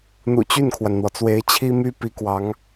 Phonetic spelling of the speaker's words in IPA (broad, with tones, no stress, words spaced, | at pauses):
n̪ṵ˨˩ t͡ɕy˥˩nkʰwa˩nn̪wɔ˩t͡swe˧˥ɪ̯ t͡ɕʰi˥my˥pi˧˥kwɑ˧˥ŋ